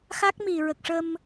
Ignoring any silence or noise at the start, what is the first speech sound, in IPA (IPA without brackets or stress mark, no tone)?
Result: x